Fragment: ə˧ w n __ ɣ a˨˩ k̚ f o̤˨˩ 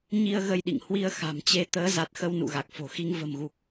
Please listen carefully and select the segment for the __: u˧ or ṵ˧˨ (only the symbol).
ṵ˧˨